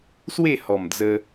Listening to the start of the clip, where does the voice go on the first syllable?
falling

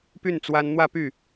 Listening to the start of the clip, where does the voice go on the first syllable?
falling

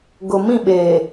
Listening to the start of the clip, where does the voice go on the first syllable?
low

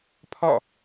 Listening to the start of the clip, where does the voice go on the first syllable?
falling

